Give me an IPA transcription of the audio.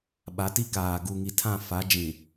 ɓ a˨˦ t i˦ k aː˨ ɡ u˨ ŋ i˨ tʰ ã˦˨ f a˨˦ d͡ʒ ĩ˨

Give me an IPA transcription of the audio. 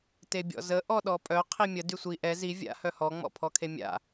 t e bʲ ɔ̰ z ə ʔ ɔ ɗ ɔ pʼ œ qʰ i mʲ ə d y sʷ i ʔ ɛ z i vʲ a̰ h œ h ɔ ŋ͡m ɔ̰ pʰ ɔ kʰ e mʲ a̰

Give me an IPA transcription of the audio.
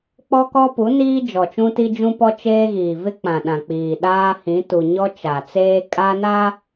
k͡p ɔ˦ k ɔ˦ p u˨˦ n iː˦ d͡ʒ ɔ˨ t͡ʃ ũ˦ t i˦ d͡ʒ ũ˦ p ɔ˦ t͡ʃ eː˦ ɣ iː˨ v ɪ˦ k͡p ã˨ ɗ ã˨ k͡p iː˨ ɗ aː˦ h ĩ˨˦ t u˨ ɲ ɔ˦ t͡ʃ a˨ t͡s eː˦ kʼ a˦ n a˦

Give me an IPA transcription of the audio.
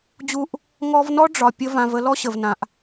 d͡ʑ u˦ ʔ | ŋ ɔ˦ v n ɔ˥ ɖ͡ʐ ɒ˨ pʲ ə˦ v ã˨ v ə˦ l ɔ˥ ɕ ə˨ v n ã˨ ʔ

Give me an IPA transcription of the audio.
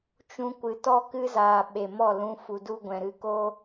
t͡ʃ ũ˧ kʷ ɨ˨ t ɔ˦ k ɨ˦ z aː˨ ɓ e˨ m ɔ˦˨ l ũ˧ f u˨ d u˦ ɡʷ ɛ̃˨ ɾ ɨ˧ k o˦

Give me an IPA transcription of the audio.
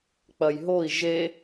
k͡p ɐ j ɦ o i̯ ʒ e

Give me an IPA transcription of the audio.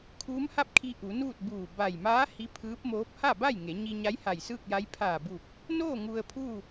kʰ uː˧˥ m h a˥˨ p̚ kʰ i˧ ʔ u˩˧ n uː˥˨ t̚ b uː˧˩ b a˧˩ j m aː˧˥ h i˧˥ pʰ ɯː˧˥ p̚ m oː˧˥ p̚ h a˥˨ b a˥˨ j ŋ e˩˧ ɲ i˧ ɲ a˧˥ j h a˧˩ j s ɯː˥˨ k̚ j a˧˥ j pʰ aː˧˩ b u˧˩ k̚ | n oː˥˨ ŋ u˧ ə̯ pʰ u˥˨

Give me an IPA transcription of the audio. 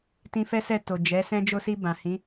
t ĩ˧ f ɛ˦ s ɛ˦˨ t o˨ d͡ʒ ɛ˨˦ s ɛ̃˦ d͡ʒ o˧ s i˧ b ã˨ h ĩ˨˦

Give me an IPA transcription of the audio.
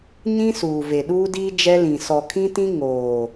ɲ ĩ˦ s uː˨ v e˨ ɗ uː˦ d iː˦ d͡ʒ ɛ˦ l ĩ˨ s ɔ˨ kʰ ĩ˦ t ĩ˦ ŋ oː˨

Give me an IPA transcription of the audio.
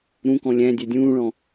ɾ ũ k ɔ̃ lʲ æ̃ dʲ æ dʲ ũː ɭ ɔ̃

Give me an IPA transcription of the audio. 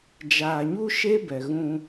d͡ʒ aː˨ ɲ u˦ ʃ e˦ b ɛ˨ ɣ ũ˦

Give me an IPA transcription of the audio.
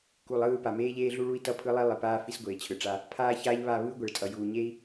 k u˨ lˠ ɯː˦˨ p a˨ m eː˦ ʎ eː˦ ɮ u˦ ɭ u˦ i̯ t ʌ˦ pʰ ɯ˦ lˠ i˦ lˠ i˨ p aː˦ f i˦ s ɡʷ eː˨ t͡ɕʰ ɯ˨ ʈ͡ʂ a˦ | pʰ aː˦ ç aː˦ ʎ β a˦˨ β ɯː˦ ɡʷ ɛ˨ ɭ tʼ ʌ˨ j uː˨ ɲ e˦ i̯

